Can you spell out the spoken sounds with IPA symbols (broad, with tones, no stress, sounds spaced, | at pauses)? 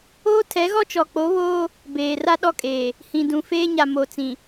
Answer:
oː˦ tʰ ɛ˨˦ ɣ ɔ˦ t͡ʃ ɔ˨ k͡p o˨˦ β oː˦ | b eː˨ r a˦ ɗ ɔ˦ kʼ eː˨ | h ĩ˨ d ũ˨ f eː˦ ɲ a˨ m o˨ t͡s ĩ˨